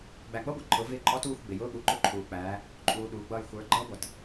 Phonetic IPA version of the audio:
ɡ͡bæ˨ɡ͡bʌ˦ɡʷɛ˨ ǃʰʊ˨˦ vɪː˦ ǃʼɔ˦tuː˦˨xʷ ɡ͡bɪ˨jʊː˦ɠu˨ ǃʊ˦ǃʰuː˨k͡pæː˨˦ | ǃʼuː˨ ɗuː˨ɡ͡bʌː˦˨j xʷə˞˨˦ ɡ͡ǃʌː˦ɡʷʌ˨t

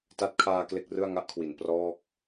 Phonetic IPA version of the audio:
ta˦˥t̚kʰaː˧ kle˥˩k̚rɯ˥˩a̯ ŋa˦˥ʔkʰwi˩˦n prɔː˥˩k̚

